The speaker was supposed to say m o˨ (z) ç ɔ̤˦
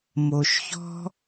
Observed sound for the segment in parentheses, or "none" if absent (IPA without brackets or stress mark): ʃ